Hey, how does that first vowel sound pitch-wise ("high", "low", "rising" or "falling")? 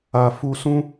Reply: low